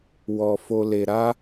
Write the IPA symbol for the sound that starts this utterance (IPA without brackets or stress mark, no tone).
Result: w